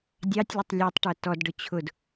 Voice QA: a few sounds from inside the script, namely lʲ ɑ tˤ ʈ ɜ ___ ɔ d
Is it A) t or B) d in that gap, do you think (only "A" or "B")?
A